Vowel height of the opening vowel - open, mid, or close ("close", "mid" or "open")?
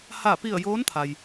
open